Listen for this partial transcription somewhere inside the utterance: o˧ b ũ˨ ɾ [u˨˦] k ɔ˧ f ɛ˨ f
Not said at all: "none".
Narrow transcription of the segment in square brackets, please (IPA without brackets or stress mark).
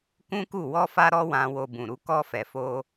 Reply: u˨˦